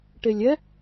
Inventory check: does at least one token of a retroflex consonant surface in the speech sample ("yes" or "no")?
yes